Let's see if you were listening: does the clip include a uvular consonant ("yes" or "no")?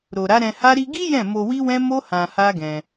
no